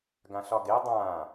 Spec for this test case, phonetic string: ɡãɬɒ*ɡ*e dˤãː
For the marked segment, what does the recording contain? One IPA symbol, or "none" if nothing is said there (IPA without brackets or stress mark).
ɡ